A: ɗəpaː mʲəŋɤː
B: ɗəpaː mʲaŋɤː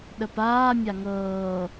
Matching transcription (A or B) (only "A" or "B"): B